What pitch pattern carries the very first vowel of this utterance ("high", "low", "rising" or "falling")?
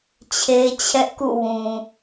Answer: high